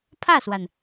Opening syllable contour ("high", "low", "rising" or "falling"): falling